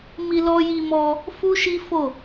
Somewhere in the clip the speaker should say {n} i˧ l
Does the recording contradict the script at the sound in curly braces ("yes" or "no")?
yes